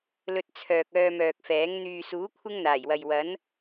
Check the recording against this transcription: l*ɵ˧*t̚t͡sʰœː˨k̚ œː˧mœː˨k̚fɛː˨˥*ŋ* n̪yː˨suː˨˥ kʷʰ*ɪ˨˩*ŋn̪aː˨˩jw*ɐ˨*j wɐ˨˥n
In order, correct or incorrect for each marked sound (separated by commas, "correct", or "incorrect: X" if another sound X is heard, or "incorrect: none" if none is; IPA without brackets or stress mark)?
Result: correct, correct, incorrect: ɪ˥, correct